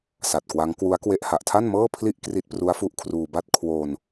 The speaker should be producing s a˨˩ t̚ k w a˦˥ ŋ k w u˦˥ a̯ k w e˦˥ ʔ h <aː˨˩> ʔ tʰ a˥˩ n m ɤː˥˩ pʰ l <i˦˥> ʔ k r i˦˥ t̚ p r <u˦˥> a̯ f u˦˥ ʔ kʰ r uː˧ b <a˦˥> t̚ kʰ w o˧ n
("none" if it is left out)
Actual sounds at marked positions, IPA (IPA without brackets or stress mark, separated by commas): a˨˩, i˥˩, u˦˥, a˥˩